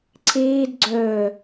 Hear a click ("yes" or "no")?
yes